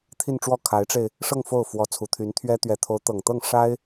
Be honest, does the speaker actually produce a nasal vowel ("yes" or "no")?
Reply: no